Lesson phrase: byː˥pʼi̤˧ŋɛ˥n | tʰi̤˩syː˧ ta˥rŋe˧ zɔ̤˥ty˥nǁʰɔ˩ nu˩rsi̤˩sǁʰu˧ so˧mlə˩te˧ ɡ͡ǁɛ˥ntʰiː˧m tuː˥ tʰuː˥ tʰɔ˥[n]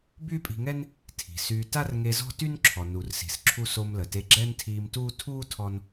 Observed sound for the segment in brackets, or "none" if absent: n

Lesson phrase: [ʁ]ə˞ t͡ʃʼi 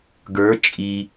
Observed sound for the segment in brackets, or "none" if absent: ɡ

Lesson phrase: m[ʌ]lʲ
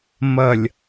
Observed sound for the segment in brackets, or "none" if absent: ʌ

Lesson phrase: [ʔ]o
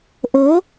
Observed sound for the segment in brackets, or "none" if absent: ʔ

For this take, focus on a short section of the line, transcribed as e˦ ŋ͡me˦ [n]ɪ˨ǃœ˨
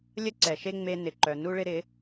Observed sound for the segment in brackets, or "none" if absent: n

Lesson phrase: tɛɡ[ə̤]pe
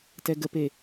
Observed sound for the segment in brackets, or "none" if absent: ə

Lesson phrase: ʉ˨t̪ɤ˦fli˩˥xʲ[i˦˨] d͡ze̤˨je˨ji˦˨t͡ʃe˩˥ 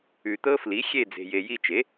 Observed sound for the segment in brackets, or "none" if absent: e˦˨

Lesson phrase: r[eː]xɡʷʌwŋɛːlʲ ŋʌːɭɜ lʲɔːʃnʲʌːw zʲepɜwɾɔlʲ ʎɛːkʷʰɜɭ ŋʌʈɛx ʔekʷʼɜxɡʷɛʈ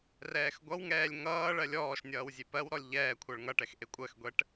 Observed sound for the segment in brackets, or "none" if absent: ɛː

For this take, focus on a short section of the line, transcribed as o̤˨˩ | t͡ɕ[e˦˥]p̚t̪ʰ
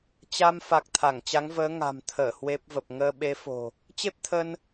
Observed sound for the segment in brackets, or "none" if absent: e˦˥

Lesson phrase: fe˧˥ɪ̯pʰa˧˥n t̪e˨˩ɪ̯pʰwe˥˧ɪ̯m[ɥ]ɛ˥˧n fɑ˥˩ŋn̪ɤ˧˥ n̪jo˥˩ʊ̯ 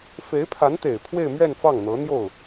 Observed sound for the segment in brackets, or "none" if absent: ɥ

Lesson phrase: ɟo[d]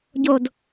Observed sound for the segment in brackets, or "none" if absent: d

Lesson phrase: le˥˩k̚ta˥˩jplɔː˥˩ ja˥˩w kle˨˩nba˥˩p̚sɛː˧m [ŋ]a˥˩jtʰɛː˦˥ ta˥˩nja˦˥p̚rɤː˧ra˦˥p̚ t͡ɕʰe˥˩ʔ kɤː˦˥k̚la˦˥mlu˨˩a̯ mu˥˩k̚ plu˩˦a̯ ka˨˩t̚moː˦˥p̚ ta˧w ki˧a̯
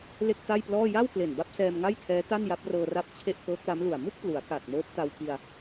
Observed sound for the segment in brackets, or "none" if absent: ŋ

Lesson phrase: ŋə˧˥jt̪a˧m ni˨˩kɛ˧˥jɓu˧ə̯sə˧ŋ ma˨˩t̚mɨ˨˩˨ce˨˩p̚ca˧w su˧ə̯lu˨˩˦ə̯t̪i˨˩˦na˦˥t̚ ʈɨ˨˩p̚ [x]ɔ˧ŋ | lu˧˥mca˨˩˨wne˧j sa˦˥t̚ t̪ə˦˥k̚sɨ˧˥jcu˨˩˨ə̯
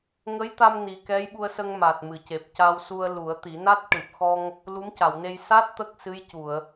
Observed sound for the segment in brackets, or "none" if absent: x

